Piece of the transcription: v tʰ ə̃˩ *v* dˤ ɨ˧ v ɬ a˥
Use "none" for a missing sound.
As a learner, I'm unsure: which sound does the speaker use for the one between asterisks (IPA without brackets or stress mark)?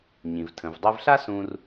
v